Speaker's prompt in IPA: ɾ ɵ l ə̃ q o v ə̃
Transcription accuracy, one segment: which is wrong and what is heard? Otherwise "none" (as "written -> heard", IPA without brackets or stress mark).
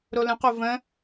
ɵ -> o